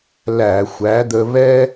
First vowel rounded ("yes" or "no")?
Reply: no